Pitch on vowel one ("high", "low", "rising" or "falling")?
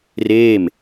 falling